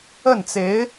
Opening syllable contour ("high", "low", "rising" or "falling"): falling